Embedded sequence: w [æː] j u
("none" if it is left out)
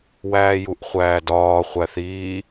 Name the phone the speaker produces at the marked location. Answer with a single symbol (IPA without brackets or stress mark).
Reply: æː